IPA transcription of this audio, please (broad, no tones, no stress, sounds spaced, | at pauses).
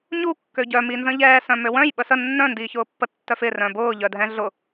ɲ u kː ø ɟ œ m i n z ə̃ ʎ ɛː s œ̃ m ø w œ̃ j ɓ ə s ə nː œ̃ n d iː ç ʊː pː ə tː œ f ɪ r œ̃ b ʊː ʎ œ dʱ ɛ̃ ɮ ʊ